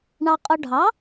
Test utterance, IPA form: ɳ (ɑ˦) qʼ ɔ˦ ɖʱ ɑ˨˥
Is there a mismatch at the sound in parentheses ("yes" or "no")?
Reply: no